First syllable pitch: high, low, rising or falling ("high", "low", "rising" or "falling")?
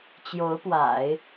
rising